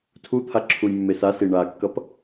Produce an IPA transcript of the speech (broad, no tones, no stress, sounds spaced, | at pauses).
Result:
tʰ u t̪ʰ a ǁʰ u j mː e s a s i ɳ a kː ʌ p